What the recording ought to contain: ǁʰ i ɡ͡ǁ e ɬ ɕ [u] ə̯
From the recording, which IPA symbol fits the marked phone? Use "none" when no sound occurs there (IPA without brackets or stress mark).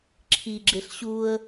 u